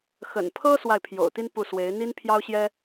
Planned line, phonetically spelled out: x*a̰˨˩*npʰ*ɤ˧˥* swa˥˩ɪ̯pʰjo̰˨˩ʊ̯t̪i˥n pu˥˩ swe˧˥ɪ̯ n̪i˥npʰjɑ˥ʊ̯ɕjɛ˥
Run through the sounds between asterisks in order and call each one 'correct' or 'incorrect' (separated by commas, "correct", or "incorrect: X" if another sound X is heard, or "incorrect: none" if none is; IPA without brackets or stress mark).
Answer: incorrect: ə̰˨˩, incorrect: ɤ˥